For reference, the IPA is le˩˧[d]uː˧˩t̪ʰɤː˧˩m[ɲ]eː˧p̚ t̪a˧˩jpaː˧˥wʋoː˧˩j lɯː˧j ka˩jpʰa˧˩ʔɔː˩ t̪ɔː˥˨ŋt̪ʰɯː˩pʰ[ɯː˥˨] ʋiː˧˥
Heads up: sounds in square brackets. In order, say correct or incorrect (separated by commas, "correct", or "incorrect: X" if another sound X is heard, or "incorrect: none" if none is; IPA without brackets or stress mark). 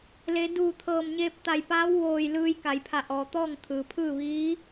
correct, correct, correct